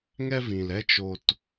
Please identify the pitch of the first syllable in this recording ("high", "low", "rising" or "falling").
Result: high